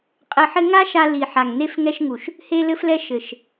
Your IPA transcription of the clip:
qʼɘ˧ħɘ˦ ŋa˦ʃa˧ li˨ħa˨ŋ ne˧fŋɛ˧ʃŋu˨ʃ | he˧lɘ˧flɛ˧ ʃɘ˨ʃ

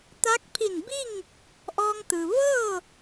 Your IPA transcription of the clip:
t̪a˧˥k̚pʰi˧˩nbi˥˨ŋ | ʔɔː˧ŋt̪ɯː˩ ʋɤː˥˨

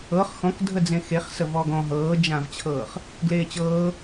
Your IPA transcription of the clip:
ɤχ xɔ̃kdʱə d͡zẽxeχsə vɔɡɔ̃ ɦɤːd͡ʒãvt͡ɕʰɤːχ | ɡleːt͡ɕɤː

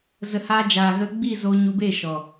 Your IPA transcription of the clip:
zə˨haː˧ d͡ʒaː˨ɣə˧ɡ͡bi˦˨zo˧ ɲu˧be˦˨ ʃɔ˨

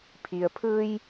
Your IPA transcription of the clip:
pʰi˩ə̯pʰɯː˧j

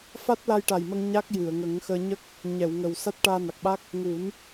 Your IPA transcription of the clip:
fa˦˥t̚la˧jʈa˨˩jmə˧ŋ ɲa˦˥k̚jɨ˨˩˨ə̯ŋə˨˩˦ŋ xəː˧ ɲə˦˥k̚ | ɲɛ˨˩˨wŋə˨˩w sa˦˥t̚ʈaː˧na˨˩k̚ɓa˦˥k̚ | ŋu˨˩˦n

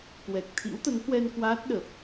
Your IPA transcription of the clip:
kwɛ˨˩k̚ t̪ʰḭ˧˥wt̪ə˨˦nhwɛ˧n kwaː˦˥t̚ɗə˨˩p̚

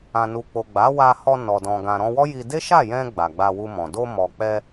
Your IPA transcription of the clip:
ã˨nu˨ k͡po˨ɡ͡ba˨˦wa˧hɔ˧ nɔ˨dɔ̃˨ ɡã˨ɾɔ̃˧wɔ˦ ji˧ de˦ʃa˦˨jɛ̃˧ ɡ͡ba˨ɡ͡ba˧wu˧mɔ̃˨ do˧mɔ˨ k͡pɛ˧

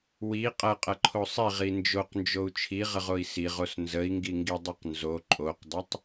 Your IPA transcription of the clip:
wi qʼɐqʼɐǃʰo sˤiʁi nd͡ʒoqnd͡ʒou̯ t͡ʃʰiʁəʁoi̯ siʁos nzəi̯ŋɡiŋɡidˤiq nzo ǃʼoqdˤɐtˤ

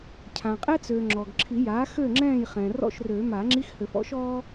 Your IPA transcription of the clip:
cʰã˩qʼɛ˥ t͡søː˩ ŋ͡ǁɔ˩ɡǁʰi˨˩˦jaː˩˥ xø˥˨ŋ͡ǁɛ̃ː˥˨jχɛ̃ː˩ rɔ̰˥˨ʃrø˨˩˦ ma˨˩˦ŋ͡ǁi˧˥˧x hø˨˩˦fɔ̰˥ʃ ɔː˥

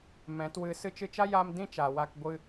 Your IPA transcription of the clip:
mɛ̃˨˦twɨ˧ sɨ˧t͡ʃɨ˧t͡ʃa˦ja˧m dĩ˦t͡ʃa˨ wa˧k ɡʷɨ˧

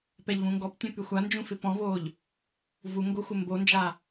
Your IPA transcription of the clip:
pɛʎvũŋɡɔptʲõ pyxʷand͡ʒũ fɪpɔ̃voːʎ | vuŋɡo xʷɪmbond͡ʒa

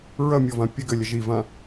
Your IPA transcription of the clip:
ɹɐmʲɔvã pʲɘɡɘlʲɐʒ ivã

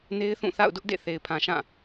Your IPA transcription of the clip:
ne˦ɪ̯θũ˦˨θa̰˦˨ʊ̯dʊ˦ʔ dḛ˦˨ θe˨ɪ̯pʰã˨ ʃã˦˨

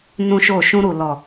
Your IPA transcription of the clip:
nũ˦ʃo˦˨ ʃũ˧ɾu˨lɔ˨

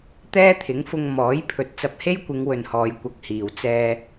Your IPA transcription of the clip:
t̪ɛː˥t̪ʰɪ˨˥ŋfʊ˧ŋ mɔː˨˥j pʰɵ˨t̚t͡sɐ˧p̚ he˥jkʷɪ˨˧ŋ wɵ˨nhɔː˨j kʷɐ˧k̚hiː˨w t͡sɛː˧

